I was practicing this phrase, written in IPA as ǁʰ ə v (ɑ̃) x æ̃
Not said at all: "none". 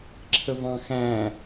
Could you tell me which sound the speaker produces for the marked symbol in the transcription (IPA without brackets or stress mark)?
ɑ̃